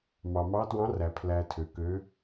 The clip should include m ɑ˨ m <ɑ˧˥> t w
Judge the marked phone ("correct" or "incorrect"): correct